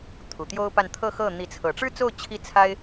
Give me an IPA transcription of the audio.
t̪ʰ u˨˩ t̪ j o˥ ʊ̯ p a˥˧ n t̪ʰ ɤ˥˧ x ɤ˥˩ n̪ i˧˥ t͡sʰ ɤ˨˩ ʈ͡ʂ ɻ̩˥ t͡s o˥˩ ʊ̯ t͡ɕʰ i˥ t͡sʰ a˥ ɪ̯

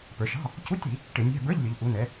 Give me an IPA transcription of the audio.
p ə˞˩˧ ʃ ɑ̤˧˥˧ | c u˧˥˧ tʲ i˧˩˧ | ʈ ɪ˧˩˧ nʲ æ̤˧˥˧ b ə˞˧˥˧ ʎ lʲ ʊ˩˧ ʎ ʔ u˩˧ n ɛ˩˧

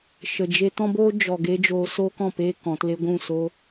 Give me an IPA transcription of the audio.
ʃ ə˨ d͡ʒ e˧ t ɔ̃˦ b oː˦ d͡ʒ ɔ˨ ɡ e˧ d͡ʒ oː˧ s oː˦ k ɔ̃˨ p e˧ k ɔ̃˨˦ t l e˦ ɡʷ ũ˦˨ s o˦

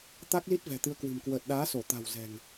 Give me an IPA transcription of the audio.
t̪ a˦˥ k̚ l i˦˥ t̚ v ɛ̤˨˩ t̪ ɨ˨˦ ə̯ k w ɨ̤˨˩ m k w əː˨˩ t̚ ɗ aː˨˦ s o˧˩ t̪ a̤˨˩ w z ɛ̤˨˩ ŋ

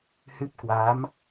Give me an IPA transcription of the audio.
h ɨ˦˥ p̚ k w a˨˦ m

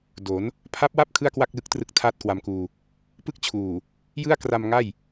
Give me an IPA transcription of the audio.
d o˩˦ n | pʰ a˦˥ p̚ w a˥˩ p̚ kʰ ɯ˥˩ a̯ k w a˥˩ k̚ l ɯ˦˥ k̚ t r ɯ˦˥ k̚ tʰ aː˥˩ t̚ k w a˧ m k uː˧ | p ɯ˥˩ k̚ t͡ɕʰ uː˨˩ | j ɯ˥˩ a̯ k r a˧ m ŋ a˥˩ j

